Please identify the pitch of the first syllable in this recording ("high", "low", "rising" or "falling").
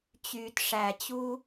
low